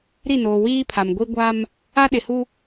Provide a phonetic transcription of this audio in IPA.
ɾ i˦˨ n oː˨ w iː˦ pʰ a˨ m ɡʷ i˦ ɡʷ a˦ m | a˦ ɗ ɪ˨ h u˦

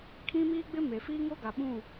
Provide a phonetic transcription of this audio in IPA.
kʰ ĩ˦ m iː˦ ɡ͡b ɪ˦ m e˨ f iː˦ ŋ o˦ ɡ a˨ ɓ ũ˦˨

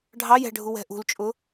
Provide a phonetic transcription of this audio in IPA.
ɖʱ ɑ j ɛ̤ ɖʱ u w ɛ̤ ʔ ṳ l t͡ʃʼ ʊ

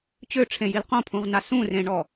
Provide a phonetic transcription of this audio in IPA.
t͡ɕ ø ʈ͡ʂʰ ẽ j i l q õ pʰ ũ ʁ n a s ũ r ẽ ɳ ɔ

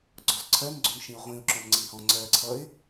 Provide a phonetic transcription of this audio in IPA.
ɡ͡ǀ ɔ z ǀʰ ɜ n ɡ͡ǀ ʊ n ʃ ĩ ʊ̯ ʁʷ ĩ ʊ̯ ǁ ɔ̃ m ŋ͡ǀ i h ɔ̃ ŋ͡ǀ ɜ ǀʰ ʌ ɪ̯

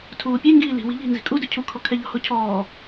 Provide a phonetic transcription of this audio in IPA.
tʰ uː pʲ ɛ ŋ ɡ iː l i̤ w i̤ ʎ i̤ n z i̤ kʼ u d ɵ cʰ u kʰ ɔ kʰ ɛ ʎ ɔ̤ h o cʰ ɔː

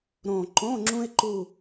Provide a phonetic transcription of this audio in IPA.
ɾ õ˨˩ ǃ õ˧˥˧ ŋ͡ǁ ũ˥ ɪ̯ ǃ u˥˧

